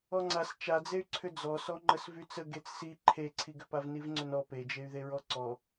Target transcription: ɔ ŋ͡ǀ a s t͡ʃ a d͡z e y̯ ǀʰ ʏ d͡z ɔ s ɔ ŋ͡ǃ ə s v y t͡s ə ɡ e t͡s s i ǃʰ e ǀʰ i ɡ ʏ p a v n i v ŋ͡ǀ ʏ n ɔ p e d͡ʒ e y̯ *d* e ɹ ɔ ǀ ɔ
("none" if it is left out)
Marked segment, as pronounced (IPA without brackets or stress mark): ð